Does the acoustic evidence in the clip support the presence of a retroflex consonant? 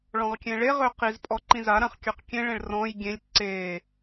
yes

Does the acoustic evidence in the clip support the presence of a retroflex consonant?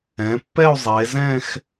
no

